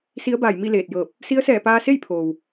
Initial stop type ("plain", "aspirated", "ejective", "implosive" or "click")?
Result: plain